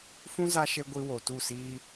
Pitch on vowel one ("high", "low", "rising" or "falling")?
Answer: high